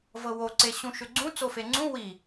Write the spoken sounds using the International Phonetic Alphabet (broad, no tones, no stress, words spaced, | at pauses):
vɤwoǀe ɕũʃʏɡ͡ǀũ t͡sofeŋ͡ǀũ wi